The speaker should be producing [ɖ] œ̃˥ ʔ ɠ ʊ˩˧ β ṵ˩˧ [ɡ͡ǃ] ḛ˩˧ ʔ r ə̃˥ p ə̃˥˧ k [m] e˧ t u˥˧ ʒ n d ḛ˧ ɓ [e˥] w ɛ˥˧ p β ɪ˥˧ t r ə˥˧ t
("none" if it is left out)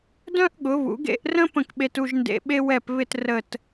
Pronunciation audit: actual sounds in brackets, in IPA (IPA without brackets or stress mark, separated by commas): d, ɡ, ɓ, e˥